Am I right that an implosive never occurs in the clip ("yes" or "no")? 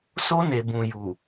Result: yes